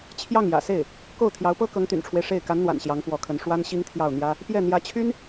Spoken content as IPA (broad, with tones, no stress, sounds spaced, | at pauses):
t͡ɕʰ j ɑ˥˩ ŋ j ä̰˨˩ s e˥˩ ɪ̯ | k o˥˩ ʊ̯ t̪ʰ j ɑ˧˥ ʊ̯ p ɤ˥ k ɤ˧˥ ŋ t̪ y̰˨˩ n ʈ͡ʂʰ w e˦ ɪ̯ ʂ e˥˩ ɪ̯ k a˧˥ n n̪ w a̰˨˩ n ɕ j ɑ˧˥ ŋ p w ɔ˧˥ kʰ ə˧˥ n ʂ w a˥ n ɕ i˥ ŋ t̪ʰ j ɑ˥˩ ʊ̯ n̪ j ä˥ | p j ɛ˥˩ n̪ j ä˧˥ t͡ɕʰ y˥ n